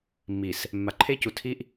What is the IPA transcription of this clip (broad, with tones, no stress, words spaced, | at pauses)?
mːi˨s | mːa˨ǃʰe˦cu˨ tʰi˦ʔ